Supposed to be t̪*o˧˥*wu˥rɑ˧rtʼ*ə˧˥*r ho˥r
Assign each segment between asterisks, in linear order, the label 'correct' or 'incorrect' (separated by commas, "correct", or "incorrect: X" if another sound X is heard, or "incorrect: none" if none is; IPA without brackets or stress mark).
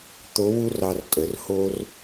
correct, incorrect: ə˩˧